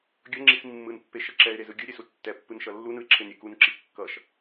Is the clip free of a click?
no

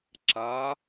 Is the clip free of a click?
no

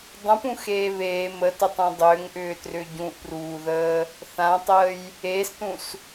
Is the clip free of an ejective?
yes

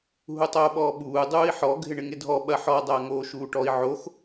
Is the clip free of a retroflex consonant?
no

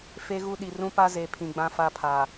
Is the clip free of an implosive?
no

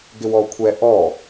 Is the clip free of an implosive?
yes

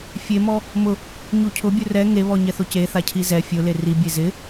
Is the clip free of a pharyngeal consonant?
yes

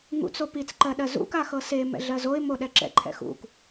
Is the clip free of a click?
no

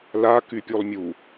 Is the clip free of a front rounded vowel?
no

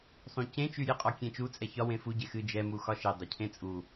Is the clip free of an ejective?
no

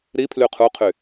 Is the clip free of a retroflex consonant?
yes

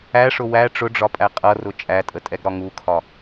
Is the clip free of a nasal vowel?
yes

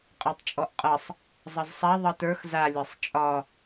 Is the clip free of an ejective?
no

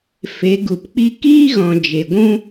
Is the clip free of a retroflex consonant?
yes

